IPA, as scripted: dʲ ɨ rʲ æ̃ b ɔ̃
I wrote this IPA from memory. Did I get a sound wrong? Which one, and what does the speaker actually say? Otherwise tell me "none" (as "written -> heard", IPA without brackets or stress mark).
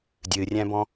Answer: none